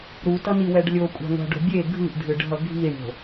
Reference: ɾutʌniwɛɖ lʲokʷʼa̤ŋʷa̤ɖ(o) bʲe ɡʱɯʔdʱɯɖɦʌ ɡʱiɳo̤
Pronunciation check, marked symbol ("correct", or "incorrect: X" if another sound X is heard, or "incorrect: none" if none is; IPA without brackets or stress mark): incorrect: o̤